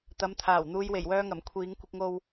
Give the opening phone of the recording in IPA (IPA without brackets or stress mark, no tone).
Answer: t̪